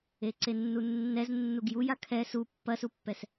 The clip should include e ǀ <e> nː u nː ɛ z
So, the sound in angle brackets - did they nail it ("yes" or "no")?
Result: yes